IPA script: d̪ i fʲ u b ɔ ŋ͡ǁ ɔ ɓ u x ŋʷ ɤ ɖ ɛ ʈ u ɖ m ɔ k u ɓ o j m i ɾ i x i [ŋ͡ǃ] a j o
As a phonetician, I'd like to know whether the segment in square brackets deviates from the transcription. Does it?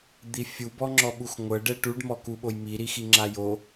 yes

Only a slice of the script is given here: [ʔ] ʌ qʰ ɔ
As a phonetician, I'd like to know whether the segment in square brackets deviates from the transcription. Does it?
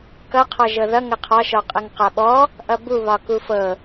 yes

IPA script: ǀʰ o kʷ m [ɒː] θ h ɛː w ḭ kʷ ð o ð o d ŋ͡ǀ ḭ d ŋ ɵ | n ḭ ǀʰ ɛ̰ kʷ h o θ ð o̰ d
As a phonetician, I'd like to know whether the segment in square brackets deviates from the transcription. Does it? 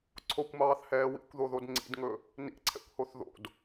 yes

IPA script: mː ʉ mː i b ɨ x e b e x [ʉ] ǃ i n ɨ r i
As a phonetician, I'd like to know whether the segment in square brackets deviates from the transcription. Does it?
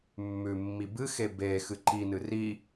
yes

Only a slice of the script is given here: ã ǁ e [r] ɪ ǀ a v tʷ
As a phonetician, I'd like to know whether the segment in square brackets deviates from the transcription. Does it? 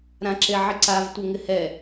yes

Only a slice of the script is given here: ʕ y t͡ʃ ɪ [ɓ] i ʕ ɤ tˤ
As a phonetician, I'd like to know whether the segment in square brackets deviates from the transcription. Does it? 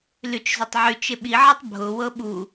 no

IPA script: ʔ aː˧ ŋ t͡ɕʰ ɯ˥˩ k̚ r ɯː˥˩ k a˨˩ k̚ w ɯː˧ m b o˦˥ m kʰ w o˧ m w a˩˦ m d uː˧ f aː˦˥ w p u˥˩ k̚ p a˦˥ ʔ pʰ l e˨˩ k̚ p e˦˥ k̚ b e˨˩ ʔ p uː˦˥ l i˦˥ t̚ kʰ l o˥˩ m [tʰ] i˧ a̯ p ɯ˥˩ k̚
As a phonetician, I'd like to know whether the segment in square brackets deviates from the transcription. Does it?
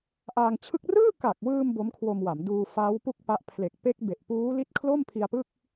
yes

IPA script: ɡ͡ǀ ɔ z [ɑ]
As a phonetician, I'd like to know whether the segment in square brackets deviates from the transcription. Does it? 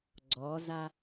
yes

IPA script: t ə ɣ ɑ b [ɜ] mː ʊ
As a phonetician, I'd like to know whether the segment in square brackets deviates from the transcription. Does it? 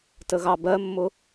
no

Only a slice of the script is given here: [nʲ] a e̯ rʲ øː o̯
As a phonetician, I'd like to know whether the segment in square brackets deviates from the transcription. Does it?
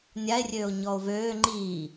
no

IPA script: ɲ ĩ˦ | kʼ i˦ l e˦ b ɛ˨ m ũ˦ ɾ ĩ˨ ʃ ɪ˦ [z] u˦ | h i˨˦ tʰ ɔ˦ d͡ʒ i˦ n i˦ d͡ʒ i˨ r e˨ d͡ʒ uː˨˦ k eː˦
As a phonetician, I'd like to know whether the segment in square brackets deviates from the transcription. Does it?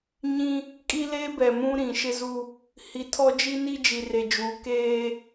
no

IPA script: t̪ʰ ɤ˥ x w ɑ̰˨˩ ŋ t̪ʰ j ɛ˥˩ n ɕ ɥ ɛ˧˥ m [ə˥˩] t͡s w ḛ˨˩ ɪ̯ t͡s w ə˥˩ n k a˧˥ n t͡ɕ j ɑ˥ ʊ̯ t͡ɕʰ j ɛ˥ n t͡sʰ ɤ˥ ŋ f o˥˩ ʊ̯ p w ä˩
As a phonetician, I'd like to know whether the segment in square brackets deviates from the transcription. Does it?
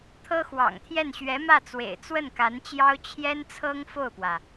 yes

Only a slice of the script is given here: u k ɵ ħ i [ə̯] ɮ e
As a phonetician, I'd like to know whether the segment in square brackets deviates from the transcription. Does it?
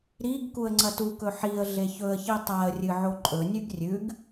no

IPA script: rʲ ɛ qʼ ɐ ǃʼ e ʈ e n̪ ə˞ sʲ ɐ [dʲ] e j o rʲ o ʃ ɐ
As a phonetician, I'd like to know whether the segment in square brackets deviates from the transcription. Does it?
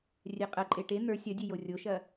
no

